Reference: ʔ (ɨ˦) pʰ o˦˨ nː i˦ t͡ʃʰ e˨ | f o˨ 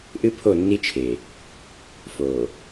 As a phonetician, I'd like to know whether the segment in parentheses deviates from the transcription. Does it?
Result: no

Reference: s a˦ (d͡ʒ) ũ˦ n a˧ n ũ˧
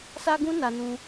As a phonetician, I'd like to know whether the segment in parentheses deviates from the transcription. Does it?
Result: yes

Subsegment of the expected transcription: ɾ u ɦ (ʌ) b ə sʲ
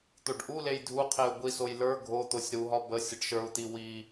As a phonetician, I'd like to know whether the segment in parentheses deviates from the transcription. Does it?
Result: yes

